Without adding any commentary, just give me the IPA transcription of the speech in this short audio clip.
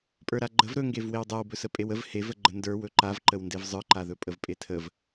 pʼ ə˞ ɾ a ɡ͡ǃ ə v ɾ ɵ ŋ ɡ e v w e w dˤ a w b ɵ s ə pʼ e w ə v h e v ə ɡ͡ǃ ə n d ə˞ w ɵ ǃ a v ǃ ə w n d e v zˤ ə˞ ǃ a ð ɵ pʼ ə v pʼ e tʰ ə v

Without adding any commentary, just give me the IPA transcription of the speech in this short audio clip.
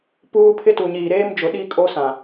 p uː˦ pʰ ɪ˦ t u˨ ɲ iː˨ ɾ eː˦ m d͡ʒ ʊ˨ ɗ iː˦ kʼ o˦ s ã˨

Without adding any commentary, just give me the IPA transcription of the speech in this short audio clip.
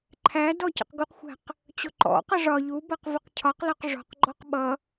ǃʰ æ d ɔ c ə̰ q ɡ u q xʷ æ̤ q | t͡ɕ ʊ ǃ ɔ̰ q ʌ ʐ ɒ ʎ u b ʌ q v ə q cʰ ɒ q l ɒ q ʐ ɔ̤ q ɡ͡ǃ ɔ q ɓ ʌ

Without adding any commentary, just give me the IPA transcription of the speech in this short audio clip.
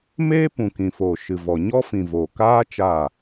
m eː˦ p ũ˨ k ĩ˨ f oː˨ ʃ ɨ˨ v ɔ˨ ɲ ɔ˦ f ĩ˨ v oː˨ k aː˦ t͡ʃ aː˦˨

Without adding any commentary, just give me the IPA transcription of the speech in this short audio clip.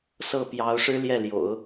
s ɤ˥˩ p j ɑ˧˥ ʊ̯ ʂ ɻ̩˥ l j ɛ˥˩ l j o̰˨˩˦ ʊ̯

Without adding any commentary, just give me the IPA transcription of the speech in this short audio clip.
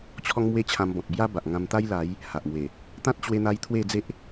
t͡ɕʰ ɔ˦ ŋ m w e˦ t͡ɕʰ ã˧ m b ɔ̃˨ t̚ b j a˦ b a˨ ʔ ŋ ã˧ m t̪ a˦ j l a˨˦ j | h a˨ ʔ m w e˨˩ | t̪ ã˦ t̚ t͡ɕ w e˧ n̪ a˧ j t̪ʰ w e˥˧ d͡z e˦ ʔ

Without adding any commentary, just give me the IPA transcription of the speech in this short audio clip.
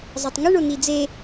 zˤ a tˤ ŋ ɪ ɳ o n i d͡z e

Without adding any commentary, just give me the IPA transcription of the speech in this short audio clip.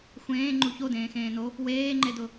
xʷ ẽː ŋ͡ǃ u ç o d ẽː x ẽː n o | w eː ŋ͡ǃ e d ʊ

